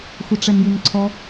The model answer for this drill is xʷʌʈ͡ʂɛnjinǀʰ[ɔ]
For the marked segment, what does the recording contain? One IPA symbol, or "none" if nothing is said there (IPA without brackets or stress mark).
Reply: ɔ